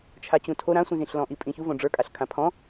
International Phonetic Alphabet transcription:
t͡ʃʰat͡ɕũtʰo ɾãsʷĩzĩɬlɔ̃ ʔipʼĩçu võɖ͡ʐə˞kʼaɬ kʰãpʰɔ̃

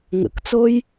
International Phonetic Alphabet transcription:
ŋə̰kt͡soj

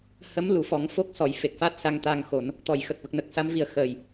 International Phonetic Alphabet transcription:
hə˧˥mlu˨˩˨fɔ˨˩˦ŋ fo˦˥k̚sɔ˨˩˨jfe˨˩k̚fa˦˥t̚ sa˧ŋt̪a˧ŋxo˨˩˦n | t̪ɔ˨˩˨jxə˨˩k̚ və˨˩k̚nə˨˩k̚sa˧˥mvi˨˩ə̯ xəː˨˩j

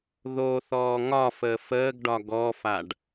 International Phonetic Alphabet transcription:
ðoθɔː ŋɒfəː fəːɡɖɒ ɡɔfaɖ

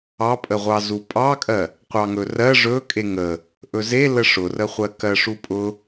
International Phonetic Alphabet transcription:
ɑpʼəʁʷɑ zupʼɑkʼɜ | qʷɑŋɵrɜ ʐɵ kʼeŋə | ʔɵze ləʂʊrəχʷɜ kɜʂupʼʊ

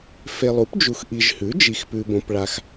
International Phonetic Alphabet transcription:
fe˨lˠu˩˥pd͡ʒu˨x ʔi˨ʒhʉ˩˥ d͡ʒi˨xpʉ˨bõ˨pɭa˨x

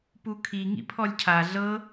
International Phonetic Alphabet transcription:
pukʰi ŋḭpʰɔlʲcʰa ɮɤ

